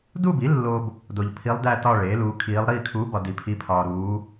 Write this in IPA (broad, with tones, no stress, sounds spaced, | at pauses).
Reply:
d u˥˧ b i˩˥ lː o˧ b | d o˧ ʎ pʰ i˧˥ lˠ d æ˥˧ t ɒ˥˧ ɭ eː˩˥ l uː˧˥ kʰ iː˧˥ lˠ ɾ iː˥˧ kʰ uː˧˥ b ɒ˧ d i˧ pʰ i˧˥ pʰ ɒː˧ ɾ uː˧˥